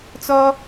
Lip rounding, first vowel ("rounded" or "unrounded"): rounded